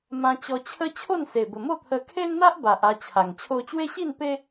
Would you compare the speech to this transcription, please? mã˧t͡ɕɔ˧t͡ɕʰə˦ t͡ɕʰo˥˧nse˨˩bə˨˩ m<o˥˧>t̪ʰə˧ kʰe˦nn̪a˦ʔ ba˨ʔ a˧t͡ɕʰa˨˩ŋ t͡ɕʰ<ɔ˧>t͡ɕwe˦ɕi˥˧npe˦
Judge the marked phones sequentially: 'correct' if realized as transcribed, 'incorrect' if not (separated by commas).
correct, incorrect